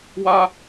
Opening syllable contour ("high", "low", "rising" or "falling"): high